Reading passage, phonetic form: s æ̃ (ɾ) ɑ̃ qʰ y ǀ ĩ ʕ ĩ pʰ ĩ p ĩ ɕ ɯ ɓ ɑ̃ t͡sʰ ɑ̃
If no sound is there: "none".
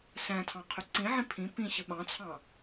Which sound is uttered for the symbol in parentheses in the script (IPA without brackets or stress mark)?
tʰ